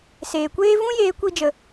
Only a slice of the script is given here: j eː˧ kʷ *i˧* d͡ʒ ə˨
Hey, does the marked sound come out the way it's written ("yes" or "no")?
yes